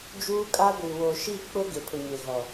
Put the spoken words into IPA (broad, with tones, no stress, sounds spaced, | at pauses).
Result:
d͡ʒ uː˦ kʼ a˦ ɡʷ i˨ w o˨ ʃ i˦˨ k͡p ʊ˦ ɡ e˨ pʰ ʊ˨ ɲ e˨ ɣ ɔ˨